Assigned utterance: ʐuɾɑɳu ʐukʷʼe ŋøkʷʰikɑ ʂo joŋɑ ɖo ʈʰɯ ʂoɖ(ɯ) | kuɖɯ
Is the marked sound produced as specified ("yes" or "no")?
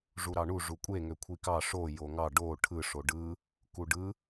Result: yes